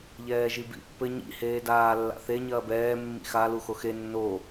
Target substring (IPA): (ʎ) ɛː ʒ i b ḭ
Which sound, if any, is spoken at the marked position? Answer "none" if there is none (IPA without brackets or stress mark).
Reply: ʎ